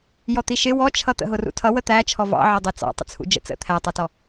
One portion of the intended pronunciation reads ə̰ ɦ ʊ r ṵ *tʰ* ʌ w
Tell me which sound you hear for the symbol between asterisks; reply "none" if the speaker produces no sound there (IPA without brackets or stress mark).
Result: tʰ